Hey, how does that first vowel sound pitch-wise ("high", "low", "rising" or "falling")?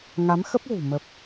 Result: rising